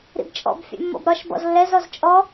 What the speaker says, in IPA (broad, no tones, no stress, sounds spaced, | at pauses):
ɾ ḭ b t͡ʃʼ ɔ̰ b fʲ ɛ̰ mː ɔ̰ b ɾ ɒ ʃ b ɔ̰ z lː ɛ z ɔ z t͡ʃʼ ɔ